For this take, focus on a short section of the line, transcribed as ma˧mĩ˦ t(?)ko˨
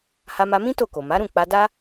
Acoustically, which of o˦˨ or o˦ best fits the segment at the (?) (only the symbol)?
o˦˨